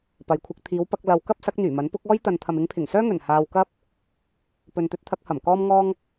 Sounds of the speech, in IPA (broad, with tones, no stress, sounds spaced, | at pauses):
p ɐ˨ j kʷʰ ɐ˧ k̚ t̪ʰ iː˨˧ w p ɐ˧ k̚ l ɐ˨ w k ɐ˥ p̚ s ɐ˨˥ k̚ n̪ yː˨˩ m ɐ˨˥ n p ʊ˨˥ k̚ ɔː˥ j t̪ ɐ˨ n t̪ʰ ɐ˨ m ɪ˨˧ ŋ pʰ ɪ˨˩ ŋ s œː˥ ŋ ɵ˨˩ n h aː˧ w k ɐ˥ p̚ | p ɵ˨ n t̪ ɵ˧ t̚ t̪ʰ ɐ˧ k̚ h ɐ˨˩ m k ɔː˥ m ŋ ɔː˥ ŋ